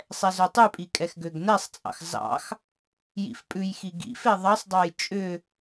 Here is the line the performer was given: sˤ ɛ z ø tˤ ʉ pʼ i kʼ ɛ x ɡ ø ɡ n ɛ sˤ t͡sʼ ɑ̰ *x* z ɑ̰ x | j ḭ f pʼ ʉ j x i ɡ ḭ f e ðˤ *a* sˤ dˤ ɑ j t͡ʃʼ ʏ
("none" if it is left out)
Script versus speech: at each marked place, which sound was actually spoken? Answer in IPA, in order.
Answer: x, ɑ

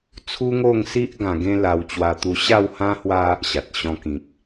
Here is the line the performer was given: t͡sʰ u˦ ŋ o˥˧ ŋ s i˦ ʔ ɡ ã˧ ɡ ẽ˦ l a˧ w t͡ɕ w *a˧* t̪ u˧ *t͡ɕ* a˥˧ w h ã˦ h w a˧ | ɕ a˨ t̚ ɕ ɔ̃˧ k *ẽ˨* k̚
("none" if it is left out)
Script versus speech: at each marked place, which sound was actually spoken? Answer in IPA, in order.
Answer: a˧, ɕ, ĩ˨

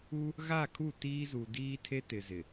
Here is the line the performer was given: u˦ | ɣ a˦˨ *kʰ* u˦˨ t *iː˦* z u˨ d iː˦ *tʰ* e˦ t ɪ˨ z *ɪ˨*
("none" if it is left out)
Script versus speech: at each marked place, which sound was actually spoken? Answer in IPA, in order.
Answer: kʰ, iː˦, tʰ, ɪ˨

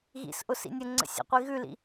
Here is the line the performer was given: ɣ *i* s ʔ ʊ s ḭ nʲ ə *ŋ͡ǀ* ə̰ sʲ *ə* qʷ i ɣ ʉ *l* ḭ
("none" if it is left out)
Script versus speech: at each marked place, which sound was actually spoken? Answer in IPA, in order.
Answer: ḭ, ŋ͡ǀ, ə̰, l

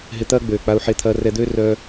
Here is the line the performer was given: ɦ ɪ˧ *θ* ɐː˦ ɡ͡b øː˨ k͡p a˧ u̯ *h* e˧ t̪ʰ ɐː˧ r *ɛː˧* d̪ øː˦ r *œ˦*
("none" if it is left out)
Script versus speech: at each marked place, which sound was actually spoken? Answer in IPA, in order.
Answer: t̪, ħ, ɛ˧, œ˦

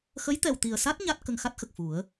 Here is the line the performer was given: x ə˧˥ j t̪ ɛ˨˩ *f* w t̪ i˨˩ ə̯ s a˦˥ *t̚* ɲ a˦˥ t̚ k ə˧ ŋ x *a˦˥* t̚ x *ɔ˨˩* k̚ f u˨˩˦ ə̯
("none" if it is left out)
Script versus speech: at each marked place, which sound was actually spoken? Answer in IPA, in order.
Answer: none, t̚, a˦˥, ə˨˩

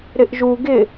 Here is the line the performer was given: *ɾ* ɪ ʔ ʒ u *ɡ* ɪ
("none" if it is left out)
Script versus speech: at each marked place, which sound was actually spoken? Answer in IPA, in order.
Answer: ɾ, ɡ

